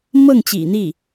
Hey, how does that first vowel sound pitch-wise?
falling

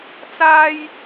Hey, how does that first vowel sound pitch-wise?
high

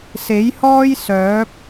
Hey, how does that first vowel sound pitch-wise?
rising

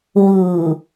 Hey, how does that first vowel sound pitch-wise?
low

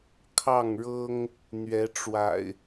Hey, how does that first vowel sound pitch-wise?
falling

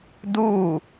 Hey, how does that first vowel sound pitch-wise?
falling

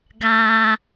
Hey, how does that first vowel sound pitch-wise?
high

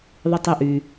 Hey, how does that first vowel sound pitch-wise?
high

